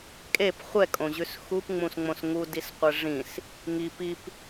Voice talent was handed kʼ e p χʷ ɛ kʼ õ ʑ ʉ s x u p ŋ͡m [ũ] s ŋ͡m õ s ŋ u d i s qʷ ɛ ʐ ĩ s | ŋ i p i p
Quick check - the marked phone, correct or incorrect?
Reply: correct